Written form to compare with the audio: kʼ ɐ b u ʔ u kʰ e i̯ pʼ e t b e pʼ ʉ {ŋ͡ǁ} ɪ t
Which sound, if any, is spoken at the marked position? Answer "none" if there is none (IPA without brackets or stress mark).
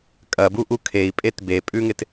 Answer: ŋ